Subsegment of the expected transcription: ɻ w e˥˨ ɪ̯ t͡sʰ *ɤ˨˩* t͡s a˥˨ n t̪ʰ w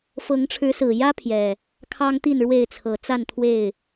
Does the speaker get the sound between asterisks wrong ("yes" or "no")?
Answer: no